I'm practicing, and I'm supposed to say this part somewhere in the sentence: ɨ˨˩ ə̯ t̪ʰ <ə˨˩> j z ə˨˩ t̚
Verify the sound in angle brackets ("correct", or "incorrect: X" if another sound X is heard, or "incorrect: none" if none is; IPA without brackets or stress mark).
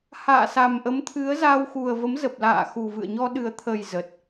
correct